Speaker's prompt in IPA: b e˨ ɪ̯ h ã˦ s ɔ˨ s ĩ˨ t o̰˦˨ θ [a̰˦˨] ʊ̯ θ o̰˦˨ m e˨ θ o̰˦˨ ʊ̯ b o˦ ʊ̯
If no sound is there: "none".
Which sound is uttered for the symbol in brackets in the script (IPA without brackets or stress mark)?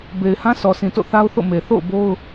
a˦